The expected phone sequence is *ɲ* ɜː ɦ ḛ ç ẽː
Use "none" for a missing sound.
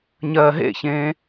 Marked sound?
ɲ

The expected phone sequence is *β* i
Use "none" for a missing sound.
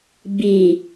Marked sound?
b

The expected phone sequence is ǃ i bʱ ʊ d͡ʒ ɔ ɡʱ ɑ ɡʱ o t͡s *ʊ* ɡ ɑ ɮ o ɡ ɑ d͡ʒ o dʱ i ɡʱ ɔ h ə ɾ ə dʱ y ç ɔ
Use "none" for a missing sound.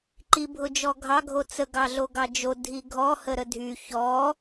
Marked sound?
ə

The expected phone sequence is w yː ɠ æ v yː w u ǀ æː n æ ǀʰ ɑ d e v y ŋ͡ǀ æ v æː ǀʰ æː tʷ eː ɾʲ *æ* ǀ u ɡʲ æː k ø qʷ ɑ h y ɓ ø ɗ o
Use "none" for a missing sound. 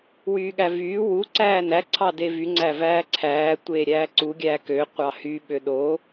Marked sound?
æː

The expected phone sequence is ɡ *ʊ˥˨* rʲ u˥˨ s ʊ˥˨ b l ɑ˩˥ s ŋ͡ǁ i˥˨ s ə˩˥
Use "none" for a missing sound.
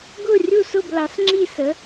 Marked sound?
ʊ˥˨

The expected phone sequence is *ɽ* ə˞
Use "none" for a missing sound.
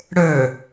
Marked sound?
ɽ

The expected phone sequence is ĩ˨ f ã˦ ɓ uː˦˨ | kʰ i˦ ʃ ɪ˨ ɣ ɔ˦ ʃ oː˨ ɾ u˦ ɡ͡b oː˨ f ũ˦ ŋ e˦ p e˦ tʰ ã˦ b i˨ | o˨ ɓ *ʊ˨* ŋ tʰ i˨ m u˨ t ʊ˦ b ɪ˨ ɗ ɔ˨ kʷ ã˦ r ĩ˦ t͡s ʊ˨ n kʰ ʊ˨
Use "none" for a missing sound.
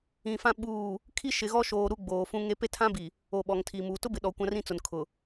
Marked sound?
ɔ˨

